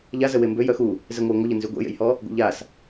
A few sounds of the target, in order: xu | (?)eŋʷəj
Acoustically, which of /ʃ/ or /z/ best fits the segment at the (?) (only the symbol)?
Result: z